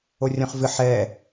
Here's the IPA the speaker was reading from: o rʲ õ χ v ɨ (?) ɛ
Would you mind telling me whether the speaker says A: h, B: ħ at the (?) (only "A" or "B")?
B